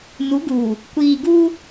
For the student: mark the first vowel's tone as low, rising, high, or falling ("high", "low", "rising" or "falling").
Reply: rising